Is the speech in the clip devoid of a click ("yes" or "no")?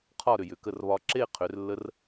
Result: no